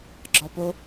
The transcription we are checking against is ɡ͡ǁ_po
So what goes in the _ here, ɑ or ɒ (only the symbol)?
ɒ